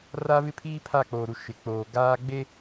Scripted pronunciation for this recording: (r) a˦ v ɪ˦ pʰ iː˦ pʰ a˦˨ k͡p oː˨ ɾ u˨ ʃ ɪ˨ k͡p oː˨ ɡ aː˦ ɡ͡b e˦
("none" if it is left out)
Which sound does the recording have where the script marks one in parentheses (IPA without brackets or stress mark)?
r